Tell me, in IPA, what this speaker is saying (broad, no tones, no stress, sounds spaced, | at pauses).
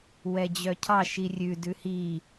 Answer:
w ɛ d͡ʑ œ cʰ ɑ ʃ i rʲ ʉ d ʉ h i